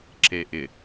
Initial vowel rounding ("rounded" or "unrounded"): unrounded